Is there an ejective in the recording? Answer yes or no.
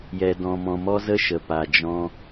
no